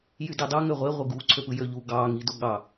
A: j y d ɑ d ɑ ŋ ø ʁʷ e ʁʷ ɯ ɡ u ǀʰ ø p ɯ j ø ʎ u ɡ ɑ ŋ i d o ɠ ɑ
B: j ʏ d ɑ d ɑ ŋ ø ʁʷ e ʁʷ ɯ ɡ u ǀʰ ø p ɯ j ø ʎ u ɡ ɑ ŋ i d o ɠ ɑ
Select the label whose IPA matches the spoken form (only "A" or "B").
A